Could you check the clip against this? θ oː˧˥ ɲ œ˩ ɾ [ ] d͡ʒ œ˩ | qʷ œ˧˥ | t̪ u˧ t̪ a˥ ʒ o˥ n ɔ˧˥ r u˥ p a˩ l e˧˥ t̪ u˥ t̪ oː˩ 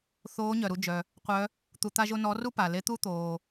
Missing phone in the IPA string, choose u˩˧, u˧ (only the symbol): u˧